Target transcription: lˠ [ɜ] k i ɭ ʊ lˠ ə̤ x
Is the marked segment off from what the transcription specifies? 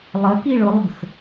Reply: no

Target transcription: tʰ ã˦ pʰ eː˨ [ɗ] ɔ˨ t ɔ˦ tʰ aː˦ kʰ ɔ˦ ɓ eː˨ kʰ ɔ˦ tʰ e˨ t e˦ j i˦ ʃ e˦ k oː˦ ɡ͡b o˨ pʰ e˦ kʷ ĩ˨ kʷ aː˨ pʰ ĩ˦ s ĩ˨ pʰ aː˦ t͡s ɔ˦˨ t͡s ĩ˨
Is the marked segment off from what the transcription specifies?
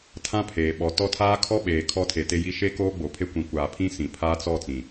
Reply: yes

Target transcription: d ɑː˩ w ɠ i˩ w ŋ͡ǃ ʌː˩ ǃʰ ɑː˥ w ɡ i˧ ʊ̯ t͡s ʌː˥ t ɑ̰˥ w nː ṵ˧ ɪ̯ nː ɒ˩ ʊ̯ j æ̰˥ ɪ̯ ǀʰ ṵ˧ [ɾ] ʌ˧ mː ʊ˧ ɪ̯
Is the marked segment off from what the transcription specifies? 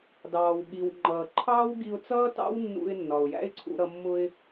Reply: no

